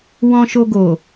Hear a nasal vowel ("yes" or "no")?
yes